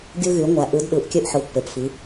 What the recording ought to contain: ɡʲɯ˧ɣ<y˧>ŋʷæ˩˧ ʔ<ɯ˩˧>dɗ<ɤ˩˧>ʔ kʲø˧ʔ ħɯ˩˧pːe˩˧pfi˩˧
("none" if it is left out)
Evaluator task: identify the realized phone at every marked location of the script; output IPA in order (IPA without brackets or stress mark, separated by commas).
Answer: y˩˧, ɯ˩˧, ɯ˩˧